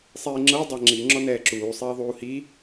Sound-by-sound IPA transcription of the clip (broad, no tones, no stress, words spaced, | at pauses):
sˤiːŋ͡ǁɤ dˤaŋ͡ǁi ŋ͡ǁɔnɛːǁuː sˤiːðˤuːhi